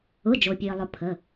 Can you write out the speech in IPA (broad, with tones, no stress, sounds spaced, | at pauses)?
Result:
ʊ˩˧˩ d͡ʒ o˩ pʲ e˩ ə̯ lˠ ʊ˩˧ pʰ ə˩˧˩